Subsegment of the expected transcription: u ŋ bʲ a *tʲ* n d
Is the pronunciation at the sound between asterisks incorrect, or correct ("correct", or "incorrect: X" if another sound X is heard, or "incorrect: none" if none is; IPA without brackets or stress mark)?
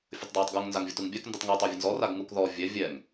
incorrect: k